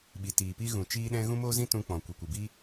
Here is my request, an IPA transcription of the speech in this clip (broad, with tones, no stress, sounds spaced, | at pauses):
ɓ i˨ t iː˨ p i˧ ɣ ũ˨ t͡ʃ iː˦ ɗ ɛ̃˦ ɣ ũ˧ m oː˧ z ĩ˧ t ũ˧ k͡p ɔ̃˨ kʷ i˨ kʷ ɨ˨ b iː˦